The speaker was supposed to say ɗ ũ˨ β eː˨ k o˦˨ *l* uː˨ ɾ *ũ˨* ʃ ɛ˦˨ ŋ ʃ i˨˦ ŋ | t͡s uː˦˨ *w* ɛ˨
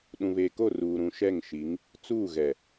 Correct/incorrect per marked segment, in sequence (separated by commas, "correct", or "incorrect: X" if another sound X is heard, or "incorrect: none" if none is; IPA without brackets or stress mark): incorrect: r, correct, incorrect: ɣ